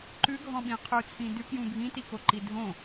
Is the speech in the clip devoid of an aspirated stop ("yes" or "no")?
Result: no